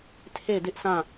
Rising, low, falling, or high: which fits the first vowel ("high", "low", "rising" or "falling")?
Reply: falling